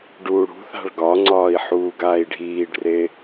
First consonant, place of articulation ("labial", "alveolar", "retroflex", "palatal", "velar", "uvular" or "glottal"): retroflex